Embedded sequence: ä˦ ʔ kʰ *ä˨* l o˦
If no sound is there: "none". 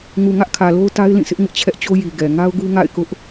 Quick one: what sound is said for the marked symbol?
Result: ä˨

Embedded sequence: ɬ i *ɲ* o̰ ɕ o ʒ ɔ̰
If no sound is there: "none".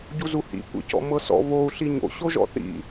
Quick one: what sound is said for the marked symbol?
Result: ɲ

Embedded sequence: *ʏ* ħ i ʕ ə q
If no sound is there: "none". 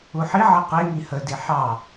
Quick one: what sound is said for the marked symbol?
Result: u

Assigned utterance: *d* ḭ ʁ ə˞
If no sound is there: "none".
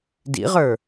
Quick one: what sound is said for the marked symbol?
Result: d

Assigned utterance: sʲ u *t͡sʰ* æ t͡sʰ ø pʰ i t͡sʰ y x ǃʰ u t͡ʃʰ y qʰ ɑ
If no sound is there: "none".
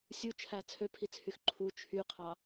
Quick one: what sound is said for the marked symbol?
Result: t͡ʃʰ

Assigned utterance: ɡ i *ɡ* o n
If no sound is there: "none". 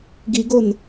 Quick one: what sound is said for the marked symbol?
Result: ɡ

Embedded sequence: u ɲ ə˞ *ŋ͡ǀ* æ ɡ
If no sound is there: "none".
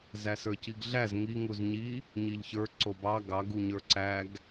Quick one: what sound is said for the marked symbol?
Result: ǀ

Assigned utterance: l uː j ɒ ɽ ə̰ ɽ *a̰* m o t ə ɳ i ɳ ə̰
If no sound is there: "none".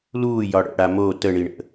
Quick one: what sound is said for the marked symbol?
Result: a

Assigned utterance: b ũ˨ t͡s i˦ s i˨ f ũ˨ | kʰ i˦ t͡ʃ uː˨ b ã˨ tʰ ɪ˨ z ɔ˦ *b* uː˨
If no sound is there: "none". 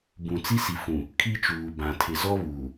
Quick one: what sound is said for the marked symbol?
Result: β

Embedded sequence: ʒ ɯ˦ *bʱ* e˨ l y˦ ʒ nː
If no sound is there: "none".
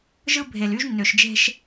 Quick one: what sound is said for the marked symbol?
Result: bʱ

